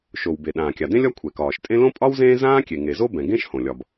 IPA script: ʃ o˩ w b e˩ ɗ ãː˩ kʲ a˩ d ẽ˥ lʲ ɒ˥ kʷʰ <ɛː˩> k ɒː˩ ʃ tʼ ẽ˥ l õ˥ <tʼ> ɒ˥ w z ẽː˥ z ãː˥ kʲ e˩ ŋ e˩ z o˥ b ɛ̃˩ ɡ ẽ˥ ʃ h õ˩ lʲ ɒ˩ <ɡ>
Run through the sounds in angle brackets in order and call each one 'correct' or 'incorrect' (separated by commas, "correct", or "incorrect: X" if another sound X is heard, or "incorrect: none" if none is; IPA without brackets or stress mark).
incorrect: ɛ˩, incorrect: pʼ, incorrect: b